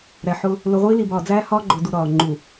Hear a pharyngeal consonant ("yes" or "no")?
yes